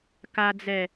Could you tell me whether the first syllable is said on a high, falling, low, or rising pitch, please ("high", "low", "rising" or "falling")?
low